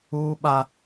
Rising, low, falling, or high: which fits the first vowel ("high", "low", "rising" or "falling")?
high